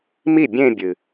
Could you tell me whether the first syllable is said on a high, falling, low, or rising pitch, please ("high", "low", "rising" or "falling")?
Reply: falling